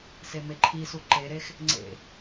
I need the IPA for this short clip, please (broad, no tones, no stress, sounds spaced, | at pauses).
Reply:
s e m e ǃʰ i s u ǃ e ɾ e x | ŋ͡ǀ ḛ